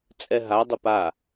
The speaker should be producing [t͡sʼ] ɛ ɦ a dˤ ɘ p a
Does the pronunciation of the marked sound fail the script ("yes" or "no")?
no